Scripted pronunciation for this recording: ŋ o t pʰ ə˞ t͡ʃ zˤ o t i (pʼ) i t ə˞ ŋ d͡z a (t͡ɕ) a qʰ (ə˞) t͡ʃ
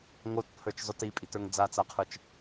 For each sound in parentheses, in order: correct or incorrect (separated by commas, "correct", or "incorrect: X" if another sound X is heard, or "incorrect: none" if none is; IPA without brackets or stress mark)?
correct, incorrect: t͡s, correct